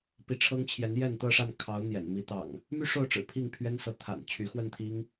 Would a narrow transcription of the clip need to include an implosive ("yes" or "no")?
no